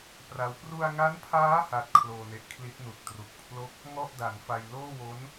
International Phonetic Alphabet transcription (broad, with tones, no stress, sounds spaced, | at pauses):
p r a˦˥ w p r u˧ a̯ ŋ a˦˥ n pʰ aː˦˥ h a˦˥ t̚ kʰ l oː˧ n e˨˩ ʔ kʰ l i˦˥ t̚ n u˨˩ k̚ t r u˨˩ k̚ pʰ l o˥˩ k̚ | ŋ ɔ˥˩ ʔ d a˩˦ n f a˧ j l oː˥˩ w o˦˥ n